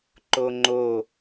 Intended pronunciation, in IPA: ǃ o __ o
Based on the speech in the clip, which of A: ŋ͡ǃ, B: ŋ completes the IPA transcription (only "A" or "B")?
A